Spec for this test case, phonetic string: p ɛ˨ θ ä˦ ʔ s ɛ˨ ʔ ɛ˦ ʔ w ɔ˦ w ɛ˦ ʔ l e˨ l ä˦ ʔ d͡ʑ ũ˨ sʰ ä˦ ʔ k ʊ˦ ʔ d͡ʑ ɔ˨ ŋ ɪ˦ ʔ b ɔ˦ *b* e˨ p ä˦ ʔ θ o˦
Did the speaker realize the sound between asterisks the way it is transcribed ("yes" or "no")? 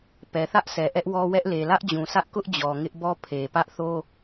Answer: no